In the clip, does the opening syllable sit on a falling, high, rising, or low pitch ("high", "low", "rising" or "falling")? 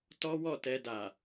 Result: high